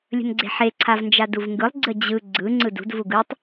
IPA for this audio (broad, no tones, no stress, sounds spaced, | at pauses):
lʲ ə̤ n ɡ͡ǀ e̤ ħ e ǀʰ a v n d͡ʒ a d u v ŋ ɡ ɯ lˠ ɡ͡ǀ ə d͡ʑ ɯ ɡ͡ǀ ɯ ŋ͡ǀ ɯ d ṳ d v u ɡ ɯ tˤ